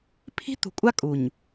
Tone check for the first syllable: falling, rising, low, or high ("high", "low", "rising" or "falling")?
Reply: high